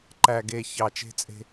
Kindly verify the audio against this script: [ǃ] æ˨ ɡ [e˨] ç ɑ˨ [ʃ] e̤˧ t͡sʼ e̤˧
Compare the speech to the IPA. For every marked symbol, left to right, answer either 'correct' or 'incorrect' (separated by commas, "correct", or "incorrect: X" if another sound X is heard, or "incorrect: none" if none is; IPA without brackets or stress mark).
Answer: correct, correct, incorrect: t͡ʃ